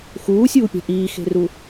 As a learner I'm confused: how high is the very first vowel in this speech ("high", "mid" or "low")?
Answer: high